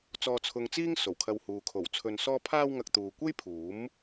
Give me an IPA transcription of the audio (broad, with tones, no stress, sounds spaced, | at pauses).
t͡s ɔː˧ t͡sʰ ʊ˧ ŋ t͡s iː˥ ŋ s o˨˩ w kʰ ɐ˧ w h uː˨ kʰ o˨˩ w t͡sʰ ɵ˧ n s ɔː˥ pʰ aː˥ w ŋ ɐ˧ k̚ t̪ uː˨ kʷ e˥ j pʰ uː˨˥ m